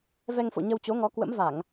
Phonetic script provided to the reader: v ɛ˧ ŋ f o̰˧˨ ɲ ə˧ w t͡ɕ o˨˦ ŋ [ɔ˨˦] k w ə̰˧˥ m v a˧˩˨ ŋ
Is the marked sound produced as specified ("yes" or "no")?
yes